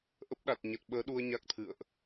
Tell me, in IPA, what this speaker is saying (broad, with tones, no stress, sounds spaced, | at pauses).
ʔ ə˦˥ p̚ ɗ a˨˩ t̚ ɲ ə˨˩ t̚ ɓ əː˨˦ ɗ u˧ ə̯ ɲ a˦˥ k̚ t̪ʰ ɨ̰˧˨ ə̯ ʔ